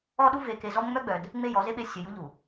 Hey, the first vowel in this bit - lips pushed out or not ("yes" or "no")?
yes